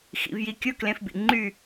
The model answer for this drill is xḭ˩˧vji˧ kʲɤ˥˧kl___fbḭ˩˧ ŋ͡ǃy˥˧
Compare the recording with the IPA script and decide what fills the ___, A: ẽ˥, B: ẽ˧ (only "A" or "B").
B